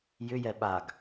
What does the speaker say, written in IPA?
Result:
jʏjɛ ɓaɡ

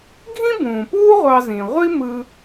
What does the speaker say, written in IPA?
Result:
ɡʱĩ˥bũː˩puː˥ ʁʷɑ˧zĩ˩ ʁʷi˥mɯ˧

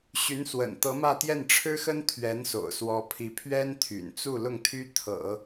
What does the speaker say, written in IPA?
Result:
ɕy˧˥nswə̰˨˩n t̪ɤ˧˥mä˥˧t̪jɛ˥˩n ʈ͡ʂʰɻ̩˥xə˥n t̪ʰɥɛ˧˥nso̰˨˩ʊ̯swɔ˧˥pʰi˧˥ pʰɥɛ˥nt̪ʰy̰˨˩nt͡su˥˧ lʊ˥˩ŋt̪ʰy˥ t̪ʰɤ̰˨˩˦

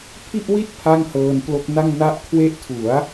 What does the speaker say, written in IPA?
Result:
pʰi˥˩ʔwi˥˩t̚ pʰa˥˩ŋhɤː˧nplo˦˥k̚na˥˩ŋ na˦˥ʔkʰwe˦˥ʔtʰu˩˦a̯

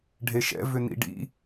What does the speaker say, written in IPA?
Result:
ɖʱeʃɛ̰ vʏnḭɖḭ

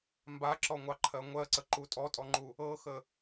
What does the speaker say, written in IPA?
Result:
mbaǁɔŋʷɑǃʰɜ ŋʷɜǀəǃu tʼɔtʼɔŋ͡ǃu | ɤxə

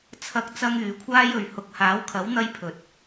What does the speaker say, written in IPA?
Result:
t͡sʰɐ˥k̚ t͡sɐ˥ŋyː˨˧kʷʰaː˥j ɵ˨ɥ hʊ˨˥k̚haː˨˥wkʰɐ˨˥wn̪ɐ˧j pʰɵ˨t̚

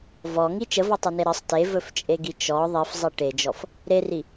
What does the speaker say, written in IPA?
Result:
vɔŋi t͡ʃəvɔtˤɵne ɾəsˤ tevɵft͡ʃʼeɡi t͡ʃɔ ðˤifzˤi ʈed͡ʒɔf | ɾeri

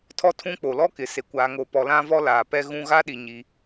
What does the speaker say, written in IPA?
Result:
tʰɔ˦tʰũ˦k͡po˨ lɔ˦kɪ˨ se˨ kʷaː˨ŋo˨pɔ˨ lã˦vɔ˦ laː˨pɛ˦ɣũ˦ ɣa˦ɗi˨ ɲi˦

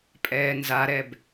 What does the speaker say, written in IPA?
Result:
pʼɛːnzaɾɛb

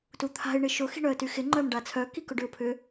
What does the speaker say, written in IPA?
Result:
tut̪ʰa̤ɪ̯ ɳɪʃʊ xi̤ɳœə̯tyxɪ ŋ͡ǃœmɖat͡sʰœ kikʊɖʏʊ̯pʰʏ

